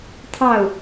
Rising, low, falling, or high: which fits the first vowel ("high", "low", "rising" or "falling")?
falling